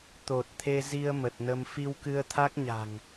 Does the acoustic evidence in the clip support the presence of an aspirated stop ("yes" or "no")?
yes